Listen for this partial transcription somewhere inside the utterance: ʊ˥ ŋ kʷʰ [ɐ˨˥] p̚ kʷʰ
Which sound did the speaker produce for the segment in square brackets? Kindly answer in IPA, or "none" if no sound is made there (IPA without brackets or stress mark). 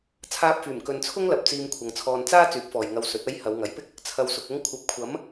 ɐ˨˥